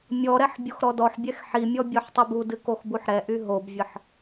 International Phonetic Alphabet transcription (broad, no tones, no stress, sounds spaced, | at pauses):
mʲ ɔ ɾ ɛ ħ bʲ o x ɾ ɔ d ɔ ħ bʲ ɛ x ħ i mʲ ɔ bʲ ɔ ħ tˤ i b u d ɨ k o x b u ħ ɾ ɛ ʔ y ɦ o b vʲ ə ħ